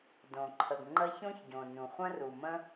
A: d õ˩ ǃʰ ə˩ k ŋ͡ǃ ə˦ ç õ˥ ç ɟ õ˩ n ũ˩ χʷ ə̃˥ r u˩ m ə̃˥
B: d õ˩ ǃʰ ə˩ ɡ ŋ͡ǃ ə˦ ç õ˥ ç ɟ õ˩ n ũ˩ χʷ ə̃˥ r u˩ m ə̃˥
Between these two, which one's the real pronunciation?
B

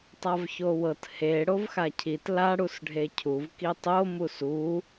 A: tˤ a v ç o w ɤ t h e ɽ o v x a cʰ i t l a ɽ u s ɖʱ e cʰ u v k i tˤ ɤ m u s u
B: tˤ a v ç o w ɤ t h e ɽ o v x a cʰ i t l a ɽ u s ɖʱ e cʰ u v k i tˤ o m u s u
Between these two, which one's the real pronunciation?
B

